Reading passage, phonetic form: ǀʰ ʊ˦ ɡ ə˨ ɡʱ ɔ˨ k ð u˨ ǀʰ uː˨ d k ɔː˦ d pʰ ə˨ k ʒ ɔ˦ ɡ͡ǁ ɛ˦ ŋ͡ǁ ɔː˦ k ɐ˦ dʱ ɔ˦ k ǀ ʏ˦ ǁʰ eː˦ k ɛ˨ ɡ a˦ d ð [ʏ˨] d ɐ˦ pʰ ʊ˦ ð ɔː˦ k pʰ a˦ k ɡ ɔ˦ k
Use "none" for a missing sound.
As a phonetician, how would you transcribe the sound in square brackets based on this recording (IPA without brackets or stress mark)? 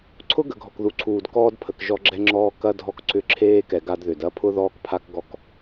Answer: ʏ˨